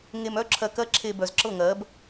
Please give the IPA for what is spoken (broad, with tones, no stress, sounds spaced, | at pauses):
ŋ e˧ m œ˦ ǁʰ ɜ˧ k ɜ˦ ǁʰ e˧ b œ˨ z ǁ ɤ˦˨ ŋ ɜ˨˦ b